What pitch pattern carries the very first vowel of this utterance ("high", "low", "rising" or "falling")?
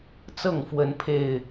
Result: falling